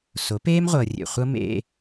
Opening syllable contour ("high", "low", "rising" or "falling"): rising